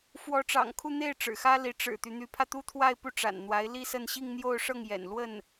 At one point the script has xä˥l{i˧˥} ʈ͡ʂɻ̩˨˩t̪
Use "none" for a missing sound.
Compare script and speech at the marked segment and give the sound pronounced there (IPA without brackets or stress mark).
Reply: i˧˥